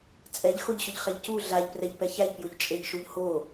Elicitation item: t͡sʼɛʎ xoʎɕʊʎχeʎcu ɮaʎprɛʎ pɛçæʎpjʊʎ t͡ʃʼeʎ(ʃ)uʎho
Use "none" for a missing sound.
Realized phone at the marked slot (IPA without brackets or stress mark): ʃ